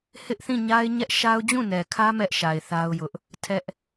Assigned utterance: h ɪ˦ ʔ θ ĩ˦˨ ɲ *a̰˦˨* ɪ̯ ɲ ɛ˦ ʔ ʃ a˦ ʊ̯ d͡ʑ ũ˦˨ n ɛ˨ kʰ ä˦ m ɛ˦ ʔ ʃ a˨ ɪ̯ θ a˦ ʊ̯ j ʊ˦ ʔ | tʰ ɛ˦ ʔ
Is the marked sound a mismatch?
yes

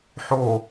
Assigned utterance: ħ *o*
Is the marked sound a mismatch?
no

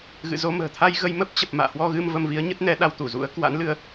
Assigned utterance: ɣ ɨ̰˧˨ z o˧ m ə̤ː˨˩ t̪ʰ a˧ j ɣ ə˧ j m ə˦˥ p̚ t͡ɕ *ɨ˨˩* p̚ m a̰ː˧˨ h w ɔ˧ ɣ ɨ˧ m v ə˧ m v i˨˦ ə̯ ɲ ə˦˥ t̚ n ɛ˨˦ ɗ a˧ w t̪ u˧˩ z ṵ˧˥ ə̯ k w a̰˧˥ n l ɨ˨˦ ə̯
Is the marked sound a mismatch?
yes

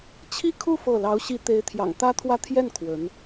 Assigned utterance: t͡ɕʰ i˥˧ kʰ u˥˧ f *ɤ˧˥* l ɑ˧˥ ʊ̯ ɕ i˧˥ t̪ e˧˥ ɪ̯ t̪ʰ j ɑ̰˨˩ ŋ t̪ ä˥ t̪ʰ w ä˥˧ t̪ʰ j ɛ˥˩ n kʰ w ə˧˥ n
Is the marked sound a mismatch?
yes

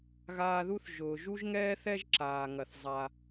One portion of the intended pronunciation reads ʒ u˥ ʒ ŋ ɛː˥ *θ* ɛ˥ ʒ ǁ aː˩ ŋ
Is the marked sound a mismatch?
no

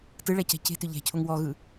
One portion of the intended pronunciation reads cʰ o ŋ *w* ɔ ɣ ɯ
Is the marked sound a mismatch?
no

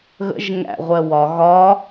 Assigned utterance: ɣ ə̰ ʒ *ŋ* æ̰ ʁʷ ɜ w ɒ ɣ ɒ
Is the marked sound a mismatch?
no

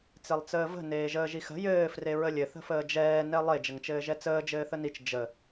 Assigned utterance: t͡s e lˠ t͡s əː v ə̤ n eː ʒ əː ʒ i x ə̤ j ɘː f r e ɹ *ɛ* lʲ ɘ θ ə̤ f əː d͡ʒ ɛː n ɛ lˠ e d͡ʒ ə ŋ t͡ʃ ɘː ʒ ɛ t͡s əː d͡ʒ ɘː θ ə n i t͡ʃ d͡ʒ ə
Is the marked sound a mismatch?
yes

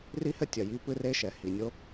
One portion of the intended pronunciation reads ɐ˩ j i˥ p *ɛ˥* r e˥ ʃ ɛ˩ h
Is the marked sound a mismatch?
yes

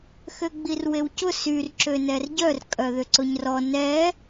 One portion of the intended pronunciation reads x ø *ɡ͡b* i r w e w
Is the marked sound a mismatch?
no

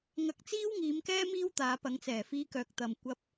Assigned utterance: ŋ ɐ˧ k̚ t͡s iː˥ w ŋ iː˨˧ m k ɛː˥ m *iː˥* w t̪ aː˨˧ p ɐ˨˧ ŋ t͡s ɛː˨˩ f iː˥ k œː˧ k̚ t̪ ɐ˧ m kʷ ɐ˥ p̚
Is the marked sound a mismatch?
no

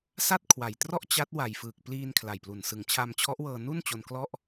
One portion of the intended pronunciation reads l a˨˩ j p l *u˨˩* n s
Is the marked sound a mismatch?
no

